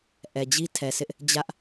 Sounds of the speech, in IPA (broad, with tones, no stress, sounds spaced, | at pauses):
ʔ ɛ˨ d͡ʑ i˦ tʰ ɛ˨ sʰ ɪ˦ ʔ | d͡ʑ ä˦ ʔ